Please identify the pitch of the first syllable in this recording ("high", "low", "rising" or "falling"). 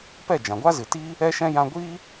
falling